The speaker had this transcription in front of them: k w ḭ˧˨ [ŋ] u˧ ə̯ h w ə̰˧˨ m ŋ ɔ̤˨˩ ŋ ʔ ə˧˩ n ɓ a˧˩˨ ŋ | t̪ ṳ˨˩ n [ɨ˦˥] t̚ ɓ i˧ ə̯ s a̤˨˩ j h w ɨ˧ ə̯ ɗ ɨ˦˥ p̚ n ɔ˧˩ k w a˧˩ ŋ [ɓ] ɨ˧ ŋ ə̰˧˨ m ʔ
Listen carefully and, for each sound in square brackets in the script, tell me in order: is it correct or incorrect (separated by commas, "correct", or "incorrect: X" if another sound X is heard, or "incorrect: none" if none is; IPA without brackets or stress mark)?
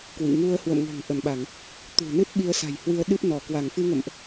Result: correct, correct, incorrect: f